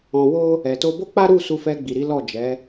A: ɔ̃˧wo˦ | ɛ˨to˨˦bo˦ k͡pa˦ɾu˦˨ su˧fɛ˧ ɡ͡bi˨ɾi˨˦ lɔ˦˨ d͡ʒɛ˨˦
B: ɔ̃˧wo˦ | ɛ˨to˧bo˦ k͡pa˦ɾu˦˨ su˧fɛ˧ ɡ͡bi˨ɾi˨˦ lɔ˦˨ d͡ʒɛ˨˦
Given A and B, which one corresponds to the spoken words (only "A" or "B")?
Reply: B